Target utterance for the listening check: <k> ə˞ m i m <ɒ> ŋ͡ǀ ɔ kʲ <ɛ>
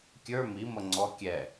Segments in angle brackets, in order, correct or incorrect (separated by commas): incorrect, incorrect, correct